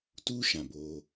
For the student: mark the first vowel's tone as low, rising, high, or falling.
high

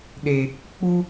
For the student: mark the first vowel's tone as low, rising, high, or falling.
low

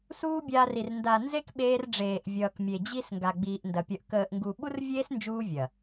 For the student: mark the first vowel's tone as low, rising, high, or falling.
high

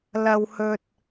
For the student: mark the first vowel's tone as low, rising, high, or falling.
high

